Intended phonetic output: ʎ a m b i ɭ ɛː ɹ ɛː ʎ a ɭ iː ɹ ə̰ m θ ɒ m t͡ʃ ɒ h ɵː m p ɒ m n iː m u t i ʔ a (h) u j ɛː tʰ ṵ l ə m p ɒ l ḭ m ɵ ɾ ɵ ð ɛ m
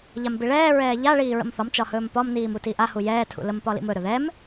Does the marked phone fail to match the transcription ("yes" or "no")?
no